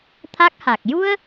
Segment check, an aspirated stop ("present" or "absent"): present